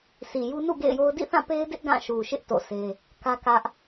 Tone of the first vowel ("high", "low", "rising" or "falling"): low